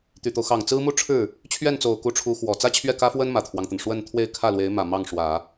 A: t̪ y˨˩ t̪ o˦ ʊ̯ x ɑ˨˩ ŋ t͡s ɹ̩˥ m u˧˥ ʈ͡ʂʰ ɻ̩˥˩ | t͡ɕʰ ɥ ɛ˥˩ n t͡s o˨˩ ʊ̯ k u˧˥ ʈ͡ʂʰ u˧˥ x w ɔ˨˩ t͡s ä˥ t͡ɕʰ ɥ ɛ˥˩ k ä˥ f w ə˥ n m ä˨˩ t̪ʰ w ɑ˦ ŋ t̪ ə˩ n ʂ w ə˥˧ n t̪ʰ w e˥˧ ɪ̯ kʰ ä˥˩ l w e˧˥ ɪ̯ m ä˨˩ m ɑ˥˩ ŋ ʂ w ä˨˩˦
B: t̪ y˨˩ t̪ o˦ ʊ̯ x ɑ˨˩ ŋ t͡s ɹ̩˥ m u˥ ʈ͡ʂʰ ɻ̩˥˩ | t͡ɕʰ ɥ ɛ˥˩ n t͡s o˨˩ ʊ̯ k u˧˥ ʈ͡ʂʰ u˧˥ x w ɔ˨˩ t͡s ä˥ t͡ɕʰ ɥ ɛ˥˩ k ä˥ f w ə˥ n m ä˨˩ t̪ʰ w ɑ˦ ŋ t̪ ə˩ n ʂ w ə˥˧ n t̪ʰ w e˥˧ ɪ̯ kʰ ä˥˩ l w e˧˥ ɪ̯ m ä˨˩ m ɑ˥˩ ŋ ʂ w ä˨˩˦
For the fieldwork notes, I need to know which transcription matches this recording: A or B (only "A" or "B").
B